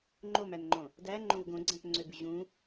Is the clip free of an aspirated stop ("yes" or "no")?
yes